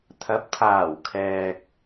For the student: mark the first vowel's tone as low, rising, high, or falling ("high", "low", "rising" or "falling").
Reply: rising